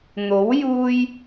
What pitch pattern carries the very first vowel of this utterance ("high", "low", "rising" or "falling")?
rising